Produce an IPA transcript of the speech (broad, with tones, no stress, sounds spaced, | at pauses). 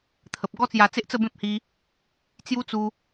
t̪ʰ ə˨ p̚ ɡ ɔ˦ t͡s j a˧ t͡s e˦ ʔ t͡s ə˥˧ b ẽ˦ p̚ h i˧ | t͡s j u˦ t͡s u˧